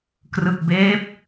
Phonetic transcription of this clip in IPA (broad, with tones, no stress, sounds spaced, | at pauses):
k r ɯ˨˩ k̚ b eː˦˥ p̚